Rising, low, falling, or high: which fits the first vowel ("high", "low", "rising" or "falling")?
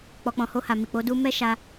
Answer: low